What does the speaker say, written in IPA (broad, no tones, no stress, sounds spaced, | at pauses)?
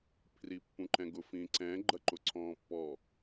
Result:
pʰ r i pː ũ ǃ ɛ̃ ɡ ʊ f ĩ ǀ ɛ̃ ɡ͡ǃ ɐ ǃ ʊ ǀʰ ɔ̃ː pː ɔ